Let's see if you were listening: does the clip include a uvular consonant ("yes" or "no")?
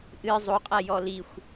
yes